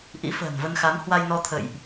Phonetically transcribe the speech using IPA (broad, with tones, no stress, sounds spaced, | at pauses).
ʔ ḭ˧˥ f ə̤ː˨˩ n v ə˧ n x a˨˦ m h w a˧ j n ɔ˧ t̪ʰ ə̰˧˨ j ʔ